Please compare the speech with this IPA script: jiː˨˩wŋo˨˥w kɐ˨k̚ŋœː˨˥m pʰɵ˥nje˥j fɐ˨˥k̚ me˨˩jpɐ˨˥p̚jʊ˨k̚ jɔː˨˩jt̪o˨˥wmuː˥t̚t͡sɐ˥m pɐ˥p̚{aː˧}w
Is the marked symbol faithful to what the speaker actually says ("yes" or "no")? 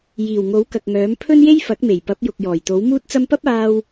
yes